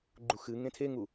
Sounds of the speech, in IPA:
ɡ͡ǃ u x ɨ ŋ ẽ tʰ e ŋ u

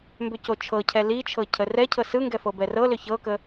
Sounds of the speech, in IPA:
m b ʏ c o t͡ʃʰ ɤ cʰ ɛ l i t͡ʃʰ ɤ cʰ ə r ɛ cʰ ɤ s ɯ ŋ ɡ ɛ f ɤ b ɛ r ɤ l ʏ ç ɤ k ə

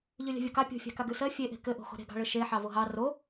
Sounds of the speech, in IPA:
ʎ ʉ lʲ a̤ vʲ o k ɑ pʲ o̤ fʲ ɑ̤ k a ɡ ʉ s ɜ fʲ e ʔ e̤ k ɘ ʔ o̤ x o̤ ɾ e̤ ɡ ɑ̤ ɭ ɘ ʃ e ħ ɑ v o ɦ ɑ r o

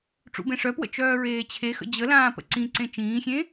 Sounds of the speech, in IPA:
ʈ͡ʂ ṵ b ẽ ʂ œ p w ə̰ t͡ʃ œː ɹ eː t͡ɕʰ e x ə̰ d͡ʑ ə l ãː p ə̰ ǀ ĩ ǀ ẽ t͡ʃ ĩː xʲ ẽ

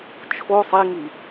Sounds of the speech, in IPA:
t͡ʃʰ o sˤ i ŋ i

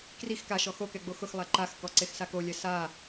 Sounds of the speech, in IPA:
k r i x k a ʃ ɔ x o k ɛ ɡ͡b o x ʊ x lˠ a ǃ a x k ɔ ǀ e x s a k o lʲ ɛ s a

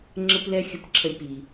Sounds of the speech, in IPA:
ŋ͡ǁ ə˦ p l ɛ˦ xʲ ə˧ p ǁʰ ə˧ lʲ p i˨

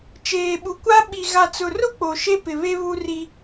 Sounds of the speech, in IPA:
t͡ʃ eː˨ ɓ u˨ kʷ a˦ ɓ i˨ ɣ a˨ t͡s ʊ˨ r ʊ˦ k͡p o˨ ʃ e˦ p ɪ˨ β e˦ β u˦ r i˦

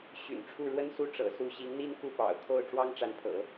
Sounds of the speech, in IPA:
ɕ y̰˨˩ n ʈ͡ʂʰ u˥˩ ɻ w ə˥ n s u˥˩ ʈ͡ʂ ɤ̰˨˩ s u˥˩ ɕ i˧˥ ŋ n̪ i˥ n k u˥˩ p ɑ̰˨˩ ʊ̯ kʰ o˥˩ ʊ̯ ʈ͡ʂ w ɑ˥ ŋ ʈ͡ʂ a˧˥ n pʰ ɤ̰˨˩˦

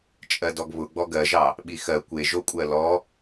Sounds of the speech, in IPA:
t͡ʃʼ ɜ d ɔ ɡ β ʊ ɡ͡b ɔ ɡ ɜ ʒ ɑ | ɓ i x ɜ kʷ e ʒ o kʷʼ ɜ l ɔ

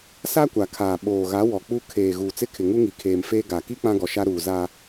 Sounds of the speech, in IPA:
s a˦ kʷ a˨ kʰ aː˨ ɓ oː˨ ɣ a˨˦ w ɔ˨ k͡p u˦ kʰ eː˨ ɣ uː˨ t͡s ɪ˦ kʰ ɪ˨ ŋ u˦ ŋ i˨ kʰ eː˨ m f eː˦ ɡ a˨ k i˦ k͡p ã˦ ɡ ɔ˨ ʃ a˦ ɾ uː˨ z a˦

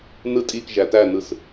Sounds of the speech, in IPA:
n ɯ tʼ i k ʒ æ t æ n ɯ s

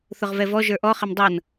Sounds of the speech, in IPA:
θ ʊ ʁ v ɛ v ɔ ʒ ə˞ ʔ ɔ χ ɪ m dˤ ʌ n

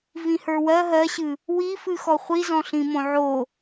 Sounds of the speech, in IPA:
v ĩ h ə˞ w ɜ ɦ ɜ ɕ ɨ | w i f ɨ x ɔ χʷ i z ɔ̃ ɬ ĩ m õ ʕ o

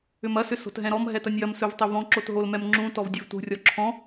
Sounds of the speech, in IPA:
ʏ m ɐ s ʏ s o̤ t ɦ ɛ̃ ɾ ɔ m ɦ ɛ t ɐ nʲ j ɐ m s ɵ v tˤ ɵ v ɔ̃ ǁ o t ɦ o l m ɛ m ŋ͡ǁ ũ t ɔ v dʲ ɵ v t ṳ rʲ ɔ ǁʰ ɔ̃

